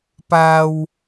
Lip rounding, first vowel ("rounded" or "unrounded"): unrounded